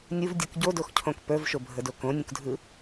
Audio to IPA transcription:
nʲ u v dʲ ɯ k ɟ o d o x cʰ õ k p ə˞ v ʃ o bʱ ə d o k õ nʲ ũ k dʱ ɯ

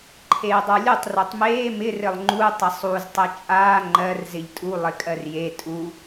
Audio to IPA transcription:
ǃʰ eː dˤ ə˞ lʲ u tˤ r o tˤ m eː m ɪ r ɘ lˠ ŋ͡ǃ u tˤ ɪ sˤ u z tˤ e t͡ʃʼ aː ŋ͡ǃ ɜ r z ɪ ʎ tʼ u lˠ ɪ kʼ ɜ r j e tʼ u

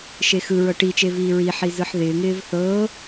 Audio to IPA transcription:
ʃ e x ɯ ɹ ɤ ʈ i t͡ʃ e v iː ɹ i ħ i z ɯ ħ ð ɪː ŋ ɪː v θ ɤː

